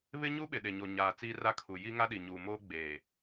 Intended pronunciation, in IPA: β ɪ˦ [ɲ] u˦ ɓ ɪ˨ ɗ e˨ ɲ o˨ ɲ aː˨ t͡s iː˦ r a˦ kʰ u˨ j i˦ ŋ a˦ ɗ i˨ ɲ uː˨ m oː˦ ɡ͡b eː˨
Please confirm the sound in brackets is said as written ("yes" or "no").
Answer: yes